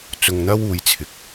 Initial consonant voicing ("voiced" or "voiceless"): voiceless